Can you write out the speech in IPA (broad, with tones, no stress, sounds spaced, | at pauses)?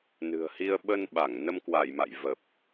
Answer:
n ɨ̤˨˩ ə̯ h i˧ ə̯ ɓ ə˧ n ɓ a˧˩ ŋ n ə˧ m k w a˧˩ j m a̰˧˨ j v ə˨˩ p̚